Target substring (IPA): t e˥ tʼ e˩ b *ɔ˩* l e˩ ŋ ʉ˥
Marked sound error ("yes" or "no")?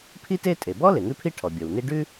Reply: yes